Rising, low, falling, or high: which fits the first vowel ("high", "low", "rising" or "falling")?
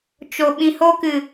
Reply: low